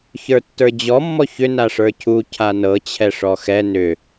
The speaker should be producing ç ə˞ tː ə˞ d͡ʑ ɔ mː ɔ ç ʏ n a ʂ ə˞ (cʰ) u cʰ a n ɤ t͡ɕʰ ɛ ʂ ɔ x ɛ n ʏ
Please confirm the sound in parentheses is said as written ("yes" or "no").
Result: yes